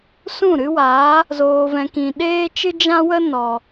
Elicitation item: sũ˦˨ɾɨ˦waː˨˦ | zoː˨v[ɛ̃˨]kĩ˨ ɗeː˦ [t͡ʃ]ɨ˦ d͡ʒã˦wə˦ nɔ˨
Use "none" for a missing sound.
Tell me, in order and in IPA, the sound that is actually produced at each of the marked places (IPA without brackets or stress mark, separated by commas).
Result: ɛ̃˨, t͡ʃ